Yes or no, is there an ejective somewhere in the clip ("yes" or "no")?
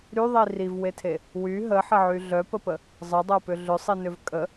yes